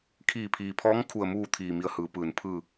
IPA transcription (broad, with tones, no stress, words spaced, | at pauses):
kʰiː˧˩pʰiː˩pʰɔː˧˥ŋ kʰu˧˩ə̯muː˥˨ t̪ʰiː˧˩mi˧ə̯hɯː˩˧pɯː˩n pʰɯː˧˩